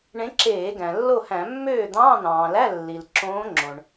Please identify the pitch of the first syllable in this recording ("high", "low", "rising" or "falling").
rising